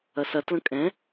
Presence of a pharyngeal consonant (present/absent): absent